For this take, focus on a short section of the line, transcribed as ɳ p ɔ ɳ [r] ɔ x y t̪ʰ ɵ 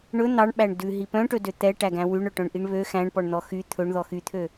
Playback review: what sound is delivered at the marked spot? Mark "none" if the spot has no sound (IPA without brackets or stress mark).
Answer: n̪